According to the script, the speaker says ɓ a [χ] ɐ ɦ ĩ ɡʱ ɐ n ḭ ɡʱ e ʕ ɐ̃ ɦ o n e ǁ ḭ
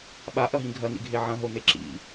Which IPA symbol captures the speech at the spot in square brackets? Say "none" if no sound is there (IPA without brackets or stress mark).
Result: ʔ